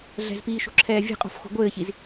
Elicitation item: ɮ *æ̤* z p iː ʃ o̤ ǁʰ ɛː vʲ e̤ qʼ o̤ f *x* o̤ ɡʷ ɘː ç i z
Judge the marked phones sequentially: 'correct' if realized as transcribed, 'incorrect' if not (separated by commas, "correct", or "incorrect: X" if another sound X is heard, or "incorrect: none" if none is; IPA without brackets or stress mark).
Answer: incorrect: ɛ̤, correct